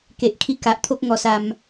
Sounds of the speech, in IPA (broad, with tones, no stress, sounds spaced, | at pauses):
k e˨ ʔ kʰ i˧ k a˨ ʔ t̪ʰ o˦ k̚ ŋ ɔ˧ s a˧ m